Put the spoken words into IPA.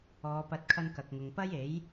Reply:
ɔː˨˧ p ɐ˧ t̚ kʰ ɐ˧ n k ɐ˨ k̚ ŋ ʊ˨ ŋ p ɐ˥ j e˨˥ j

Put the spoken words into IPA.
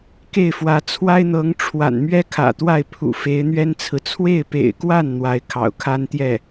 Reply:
k e˥˩ ɪ̯ f w ä˧˥ t͡sʰ w a˥ ɪ̯ n̪ ɤ˧˥ ŋ ʈ͡ʂʰ w a̰˨˩ n m ɥ ɛ˥ kʰ ä̰˨˩ t̪ w a˥˩ ɪ̯ pʰ ṵ˨˩ f e˧˥ ɪ̯ n̪ ɥ ɛ˥ n t͡sʰ ɹ̩˨ t͡sʰ w e˥˩ ɪ̯ p ḛ˨˩ ɪ̯ k w a˥˩ n n̪ w a˧˥ ɪ̯ kʰ ɑ̰˨˩ ʊ̯ kʰ a˥ n t̪ j ɛ˥˩

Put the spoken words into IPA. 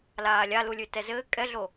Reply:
l aː lʲ a l u lʲ ʉ t ɛ z ɘː kʼ ɛ ɮ o

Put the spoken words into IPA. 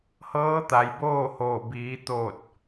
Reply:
h ɤː˧˥ t̪ a˩ j b oː˥˨ h oː˧˩ b iː˩˧ t̪ oː˧˩ t̚

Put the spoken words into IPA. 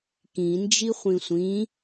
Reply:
k ĩ n d͡ʒ i χʷ ĩ sʷ ĩ

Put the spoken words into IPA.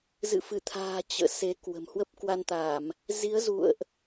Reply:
z ɨ̰˧˨ f ɨ˧˩ t̪ʰ a̤ː˨˩ t͡ɕ ə̰ː˧˨ s e˨˦ k w ə̤˨˩ m h w ə˦˥ p̚ k w a˧ n t̪ a˧˩˨ m | z i˨˦ ə̯ z ṵ˧˨ ə̯ ʔ

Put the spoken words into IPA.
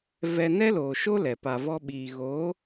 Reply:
v ɛ˧ n ɛ˦ l oː˨ ʃ o˦ l ɛ˨ p a˧ v ɔ˦ ɓ iː˧ ɣ o˨˦

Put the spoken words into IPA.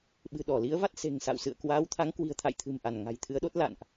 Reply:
ɓ ɨ̤˨˩ ɗ ɔ˧˩ l i˨˦ ə̯ v a˦˥ t̚ s e̤˨˩ ŋ s a̰˧˨ w s ɨ̰˧˨ ə̯ k w aː˨˦ w t̪ʰ a˨˦ ŋ k w i̤˨˩ ə̯ t̪ʰ a̰˧˨ j t̪ʰ ɨ̤˨˩ m ʔ a˧˩ n ŋ a̤˨˩ j t̪ʰ ɨ˨˦ ə̯ ɗ o˦˥ t̚ l a̰˧˨ n ʔ

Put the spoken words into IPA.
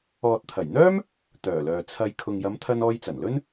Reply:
ɔː˨ t̚ t̪ʰ ɐ˨˩ j n̪ œː˥ m | t̪ œː˨˩ l œː˨ t͡sʰ ɐ˧ j kʰ ʊ˨ ŋ j ɐ˨˧ m t̪ʰ ɐ˧ n ɔː˧ j t͡s ɐ˨˩ n l ɵ˥ n

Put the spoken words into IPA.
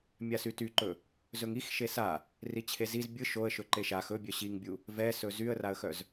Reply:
mʲ a s y t y ǃ ɵ | z ɵ ŋ i x ʃ e s a | r i t͡ɕʰ e z i z bʲ ɯ ʃ o ə̯ ʃ ɵ ǃ e ʃ a x ɵ bʲ œ ɕ i ŋ bʲ u | v ɛ s ɵ z y ə̯ r a ə̯ x œ z

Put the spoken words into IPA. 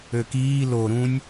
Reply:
ø k iː l o ɾ ũ nʲ

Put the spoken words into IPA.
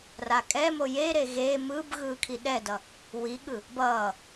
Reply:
r a kʼ ɛ m o j e ɾ e ɣ eː m ɯː b ɣ ɯː kʰ i ɗ ɛ d ʌ | w i ɠ ɯ | b ʌː

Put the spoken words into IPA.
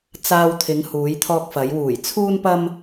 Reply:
t͡s aː˧ w t̪ʰ ɪ˨˧ ŋ h uː˨˧ j t̪ʰ ɔː˧ k̚ f ɐ˨˧ j w uː˨˩ j t͡sʰ uː˥ n p ɐ˥ m

